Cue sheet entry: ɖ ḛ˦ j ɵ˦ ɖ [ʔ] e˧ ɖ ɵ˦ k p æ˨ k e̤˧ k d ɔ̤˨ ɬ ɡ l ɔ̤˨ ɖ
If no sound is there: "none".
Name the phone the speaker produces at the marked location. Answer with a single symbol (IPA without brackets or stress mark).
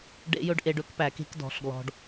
ʔ